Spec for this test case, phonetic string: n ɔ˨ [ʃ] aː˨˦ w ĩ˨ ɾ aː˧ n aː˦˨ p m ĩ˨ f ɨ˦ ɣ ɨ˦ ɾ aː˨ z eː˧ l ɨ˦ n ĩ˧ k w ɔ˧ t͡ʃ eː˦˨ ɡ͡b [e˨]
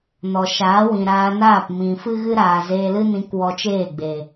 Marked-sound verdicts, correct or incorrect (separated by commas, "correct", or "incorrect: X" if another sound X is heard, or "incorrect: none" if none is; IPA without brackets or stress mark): correct, correct